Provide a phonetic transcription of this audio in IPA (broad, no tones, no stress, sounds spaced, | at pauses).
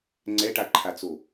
ŋ͡ǀ ɛ ʈ a ǃʰ a t͡s o